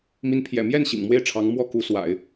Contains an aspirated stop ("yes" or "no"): yes